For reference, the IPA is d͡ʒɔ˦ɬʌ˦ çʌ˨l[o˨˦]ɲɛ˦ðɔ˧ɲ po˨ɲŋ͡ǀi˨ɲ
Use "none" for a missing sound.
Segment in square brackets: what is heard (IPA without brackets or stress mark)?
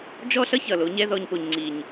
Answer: o˨˦